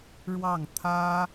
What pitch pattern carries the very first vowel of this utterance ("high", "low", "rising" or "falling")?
falling